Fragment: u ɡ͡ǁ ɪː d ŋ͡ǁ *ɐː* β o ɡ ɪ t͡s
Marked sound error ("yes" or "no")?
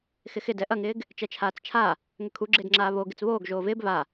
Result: yes